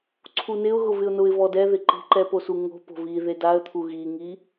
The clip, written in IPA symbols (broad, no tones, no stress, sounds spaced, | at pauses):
ǀʰ u n ɪ ʊ̯ ɣ ʊ v ɪ ʊ̯ n ʊ ɪ̯ v ɔ d ɛ ð ɪ ǃ i̤ ǃ ɛ p o s u ŋ o̤ p o̤ v i ð e d a ə̯ t̪ʰ u ɣ i ŋ i